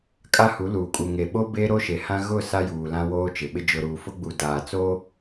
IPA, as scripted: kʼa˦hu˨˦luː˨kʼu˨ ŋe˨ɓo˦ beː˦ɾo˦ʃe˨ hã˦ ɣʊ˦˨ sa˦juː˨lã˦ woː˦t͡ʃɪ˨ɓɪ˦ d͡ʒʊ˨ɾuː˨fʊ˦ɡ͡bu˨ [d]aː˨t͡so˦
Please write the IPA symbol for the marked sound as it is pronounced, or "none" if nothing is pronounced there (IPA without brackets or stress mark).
d